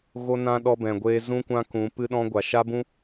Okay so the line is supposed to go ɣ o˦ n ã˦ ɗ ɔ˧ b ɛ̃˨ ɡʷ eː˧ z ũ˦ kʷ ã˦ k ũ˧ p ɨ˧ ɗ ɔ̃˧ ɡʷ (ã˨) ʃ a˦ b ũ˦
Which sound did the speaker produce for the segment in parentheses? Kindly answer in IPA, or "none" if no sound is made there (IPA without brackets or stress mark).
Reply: a˨